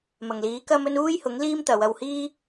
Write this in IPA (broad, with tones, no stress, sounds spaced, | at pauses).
m ɐ˨˩ ŋ l iː˨˥ k ɐ˥ m ɵ˥ n uː˥ j h ʊ˨˥ ŋ l iː˥ m t̪ ɐ˨˧ w ɐ˧ w h iː˥